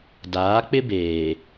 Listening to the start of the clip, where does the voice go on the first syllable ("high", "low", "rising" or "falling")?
rising